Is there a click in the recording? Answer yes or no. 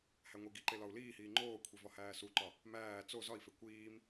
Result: yes